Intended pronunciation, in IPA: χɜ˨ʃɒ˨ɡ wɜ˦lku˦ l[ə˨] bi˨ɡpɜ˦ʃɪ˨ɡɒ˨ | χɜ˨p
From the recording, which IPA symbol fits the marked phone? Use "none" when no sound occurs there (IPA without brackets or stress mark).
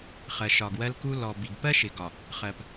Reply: ɔ˨